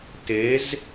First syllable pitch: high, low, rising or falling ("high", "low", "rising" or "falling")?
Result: rising